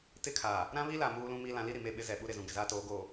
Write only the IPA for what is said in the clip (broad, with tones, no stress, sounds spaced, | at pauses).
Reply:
t ɪ˦ kʰ aː˨ | ɾ ã˦ β i˦ l a˨ m uː˦ l ũ˦ m i˦ l ã˨˦ l i˦ ɾ i˨ m e˦˨ ɓ ɪ˦ z ɛ˨ ɓ u˦ ɾ ɪ˨ z ũ˨ ɡ ɪ˨ z aː˦ t oː˨˦ ɡ oː˨